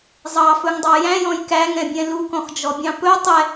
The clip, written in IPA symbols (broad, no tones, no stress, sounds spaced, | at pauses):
zˤ ɑ f ɵ ŋ dˤ ɑ j æ̃ j ɔ̃ j k æ ŋ ɛ̃ bʲ ɛ̃ l u k ɔ̃ x d͡ʒ ɔ bʲ ɑ̃ p ɵ tˤ ɛ